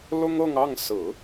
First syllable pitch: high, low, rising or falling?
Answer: high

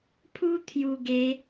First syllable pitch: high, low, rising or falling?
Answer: high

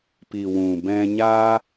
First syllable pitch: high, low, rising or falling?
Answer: low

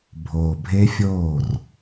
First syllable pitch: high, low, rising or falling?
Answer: low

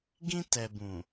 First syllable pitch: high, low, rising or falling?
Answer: high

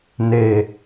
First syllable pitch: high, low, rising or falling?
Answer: low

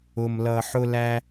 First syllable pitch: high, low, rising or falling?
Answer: high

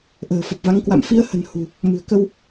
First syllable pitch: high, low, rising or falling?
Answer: low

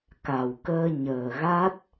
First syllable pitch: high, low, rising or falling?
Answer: low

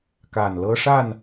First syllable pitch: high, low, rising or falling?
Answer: low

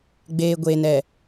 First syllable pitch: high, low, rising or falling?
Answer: low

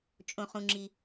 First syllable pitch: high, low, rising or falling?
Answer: high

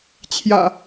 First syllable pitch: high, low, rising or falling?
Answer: low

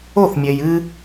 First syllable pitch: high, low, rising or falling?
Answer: falling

